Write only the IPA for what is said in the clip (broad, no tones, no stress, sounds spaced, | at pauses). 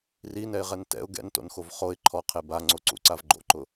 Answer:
r i n ɛ ɪ̯ ʁ ɛ n t ɛ̰ ʊ̯ ɡ ɛ̰ n t o̰ n x o v χ o ɪ̯ ǃʰ ɔ qʰ e b a ŋ͡ǀ o ǀ ṵ ǀ a v ɡ͡ǃ o̰ ǃ ʊ